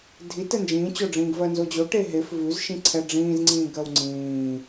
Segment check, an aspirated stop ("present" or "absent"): present